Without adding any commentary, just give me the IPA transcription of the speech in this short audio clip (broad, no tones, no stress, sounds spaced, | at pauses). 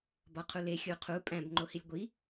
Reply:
b ɒ qʰ u l e xʲ u qʰ u pʼ æ̃ b ŋ͡ǃ o h i lʲ ɡʷ i